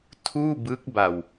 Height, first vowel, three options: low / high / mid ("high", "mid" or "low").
high